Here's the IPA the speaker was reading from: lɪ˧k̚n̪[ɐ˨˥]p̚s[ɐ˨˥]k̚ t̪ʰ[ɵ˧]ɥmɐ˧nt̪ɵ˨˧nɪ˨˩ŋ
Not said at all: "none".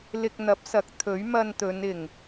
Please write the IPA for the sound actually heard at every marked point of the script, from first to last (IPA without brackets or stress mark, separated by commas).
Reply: ɐ˨˥, ɐ˨˥, ɵ˨˥